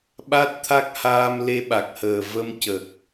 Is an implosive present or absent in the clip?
present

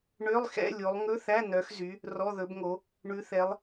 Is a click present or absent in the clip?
absent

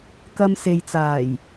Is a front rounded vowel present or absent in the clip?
absent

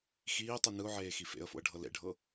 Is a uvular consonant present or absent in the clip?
absent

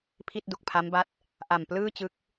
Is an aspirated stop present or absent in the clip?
present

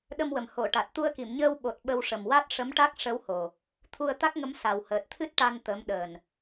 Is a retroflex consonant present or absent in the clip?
present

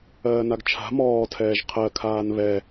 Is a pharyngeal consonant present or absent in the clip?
absent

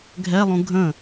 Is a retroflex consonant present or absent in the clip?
absent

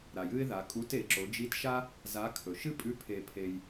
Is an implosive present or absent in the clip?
absent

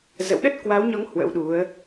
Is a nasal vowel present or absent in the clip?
absent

